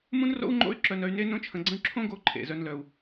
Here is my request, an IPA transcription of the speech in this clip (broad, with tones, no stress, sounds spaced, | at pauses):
m ũ˥ n r o̰˥ u̯ ŋ͡ǃ o̰˥ y̯ ǁ œ˧ n œ˧ y̯ n e˥ n õ˥ t͡ʃʰ ə̃˧ ɡ͡ǀ ə̃˥ y̯ ǁʰ õ˥ ɡ o˧ ǃʰ ḛ˩ z œ˧ n l œ˩ u̯